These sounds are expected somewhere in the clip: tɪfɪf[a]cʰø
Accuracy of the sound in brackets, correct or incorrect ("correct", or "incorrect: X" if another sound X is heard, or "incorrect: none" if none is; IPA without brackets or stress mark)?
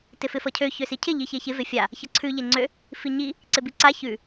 incorrect: ʌ